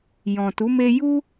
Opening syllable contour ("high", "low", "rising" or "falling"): low